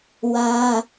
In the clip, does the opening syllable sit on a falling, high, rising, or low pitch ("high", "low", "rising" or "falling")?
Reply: high